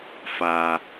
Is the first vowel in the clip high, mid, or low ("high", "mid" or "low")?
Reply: low